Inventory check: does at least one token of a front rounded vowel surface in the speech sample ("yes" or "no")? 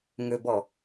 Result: yes